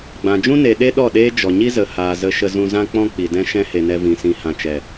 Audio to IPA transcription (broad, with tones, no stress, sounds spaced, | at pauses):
ɡ͡b ã˨ d͡ʒ ũ˦ n e˨ ɗ e˦ ɗ ɔ˦˨ ɗ eː˦ d͡ʒ ɔ˨ ɲ i˦ z ə˨ h aː˨ z ə˧ ʃ ə˧ z ũ˧ z ã˦ k͡p ɔ̃˦ k͡p i˨ d ɛ̃˦ ʃ ɛ̃˦ h e˨ n ɛ˧ v ĩ˨ s ĩ˨ h ã˨ t͡ʃ ɛ˨